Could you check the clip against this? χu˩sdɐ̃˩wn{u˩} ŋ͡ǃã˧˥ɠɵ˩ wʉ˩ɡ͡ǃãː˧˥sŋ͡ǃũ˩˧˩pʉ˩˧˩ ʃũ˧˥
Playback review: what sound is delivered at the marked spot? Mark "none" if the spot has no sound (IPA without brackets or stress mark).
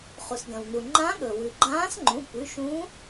u˩